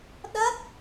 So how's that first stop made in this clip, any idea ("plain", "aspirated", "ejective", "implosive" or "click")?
implosive